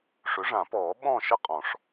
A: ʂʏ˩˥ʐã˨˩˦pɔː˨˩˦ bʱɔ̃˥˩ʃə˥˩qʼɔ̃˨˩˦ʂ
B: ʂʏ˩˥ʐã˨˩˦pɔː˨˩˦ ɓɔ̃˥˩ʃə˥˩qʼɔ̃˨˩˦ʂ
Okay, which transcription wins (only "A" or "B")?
B